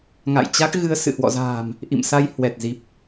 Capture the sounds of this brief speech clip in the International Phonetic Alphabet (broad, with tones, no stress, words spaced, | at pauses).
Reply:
ŋa̰˧˨jt͡ɕa˦˥k̚ɣɨ˧ə̯ sɨ̰˧˨hwɔ̰˧˨za̤ː˨˩m | ʔḭ˧˨msa˧j hwɛ˨˩t̚zi˨˩p̚